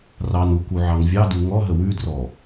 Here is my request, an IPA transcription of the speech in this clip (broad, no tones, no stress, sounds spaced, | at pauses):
r ɑ n u k u ʕ ɑ ŋ vʲ ɑ d u ŋ ɔ ɦ ə w ʉ d r ɔ